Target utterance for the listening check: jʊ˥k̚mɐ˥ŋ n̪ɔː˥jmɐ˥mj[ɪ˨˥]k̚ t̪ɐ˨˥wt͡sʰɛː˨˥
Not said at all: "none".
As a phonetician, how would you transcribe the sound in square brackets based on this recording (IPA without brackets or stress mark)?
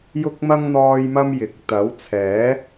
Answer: ɪ˨˥